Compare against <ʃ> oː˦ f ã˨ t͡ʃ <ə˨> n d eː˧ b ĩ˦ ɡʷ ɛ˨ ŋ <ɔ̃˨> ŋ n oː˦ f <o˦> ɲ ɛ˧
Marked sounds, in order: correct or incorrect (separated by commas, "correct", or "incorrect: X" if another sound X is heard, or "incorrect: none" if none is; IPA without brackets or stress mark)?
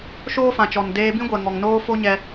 correct, incorrect: ɔ˨, incorrect: ɔ˨, correct